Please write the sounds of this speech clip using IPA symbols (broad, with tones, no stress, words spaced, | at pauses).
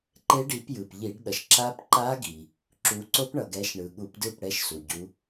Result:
ǃe˦˥ɖi˨˦pjɯ˩p ʎi˧˩˧ɖ ɗʌ˩ʃ ǁa˦˥p ǃa˦˥ɡi˩ | ǁu˨˦ǀo˦˥pɳʌ˩ɡɛ˨˦ʃ ɳɯ˩ɠu˧˩˧pdɯ˥˩p ɽɛ˦˥ʃsu˩ ɟu˨˦